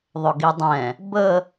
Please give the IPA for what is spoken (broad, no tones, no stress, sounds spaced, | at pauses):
ðˤ ɵ ɡ i dˤ ɛ̃ | b ə